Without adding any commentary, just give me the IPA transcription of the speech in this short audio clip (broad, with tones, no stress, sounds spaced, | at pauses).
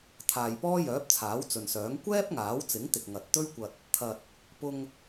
t̪ʰ aː˨ j p ɔː˥ j œː˨˥ p̚ t͡sʰ aː˨˥ w t͡s ɵ˨ n s œː˨˥ ŋ kʷ ɛː˥ p̚ ŋ aː˨˥ w t͡s ɪ˨˥ ŋ t̪ ɪ˨ k̚ ŋ ɐ˨ t̚ t̪ ɵ˥ ɥ kʷ ɐ˧ t̚ | t̪ʰ ɐ˨ t̚ | p ʊ˧ ŋ